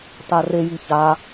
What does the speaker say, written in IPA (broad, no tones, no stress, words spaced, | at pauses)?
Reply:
tareji ça